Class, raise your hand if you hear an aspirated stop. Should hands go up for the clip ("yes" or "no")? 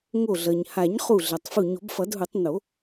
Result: no